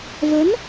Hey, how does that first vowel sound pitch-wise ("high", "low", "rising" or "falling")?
rising